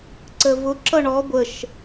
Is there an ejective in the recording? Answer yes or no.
no